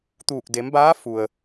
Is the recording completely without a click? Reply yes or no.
yes